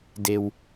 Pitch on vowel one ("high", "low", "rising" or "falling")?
low